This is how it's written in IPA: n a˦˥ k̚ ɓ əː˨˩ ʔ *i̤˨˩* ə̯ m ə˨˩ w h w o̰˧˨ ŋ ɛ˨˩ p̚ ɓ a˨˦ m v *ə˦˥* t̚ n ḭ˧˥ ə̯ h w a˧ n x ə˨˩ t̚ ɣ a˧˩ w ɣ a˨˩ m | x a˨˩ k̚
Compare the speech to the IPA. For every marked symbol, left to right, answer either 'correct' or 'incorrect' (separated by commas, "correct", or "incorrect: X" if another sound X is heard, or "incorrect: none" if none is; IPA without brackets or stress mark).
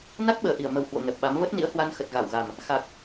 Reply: incorrect: i˧˩, correct